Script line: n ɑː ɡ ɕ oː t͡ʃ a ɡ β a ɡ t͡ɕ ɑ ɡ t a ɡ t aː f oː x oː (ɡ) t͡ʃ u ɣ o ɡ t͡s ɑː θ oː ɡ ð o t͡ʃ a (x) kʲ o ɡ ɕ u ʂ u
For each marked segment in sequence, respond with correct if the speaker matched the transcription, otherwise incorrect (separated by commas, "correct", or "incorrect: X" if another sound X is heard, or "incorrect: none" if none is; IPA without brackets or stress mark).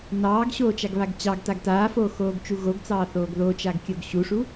correct, incorrect: ɡ